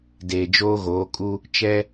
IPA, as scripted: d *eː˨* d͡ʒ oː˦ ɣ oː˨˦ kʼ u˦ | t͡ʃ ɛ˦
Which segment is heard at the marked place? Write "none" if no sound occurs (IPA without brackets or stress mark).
eː˨